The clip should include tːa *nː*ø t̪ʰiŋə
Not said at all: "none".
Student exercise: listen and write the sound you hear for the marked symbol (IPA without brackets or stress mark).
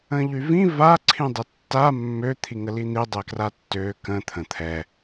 mː